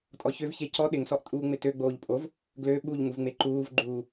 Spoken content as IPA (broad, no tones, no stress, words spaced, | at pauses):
tʼɔçøvçe cɔ ɗɪŋsɔʔ tʼuːŋ͡mɪtøɡ͡boːʎ pʼov | ɡlø ɓuʎŋuv ŋ͡meǃuːvɡ͡ǃuː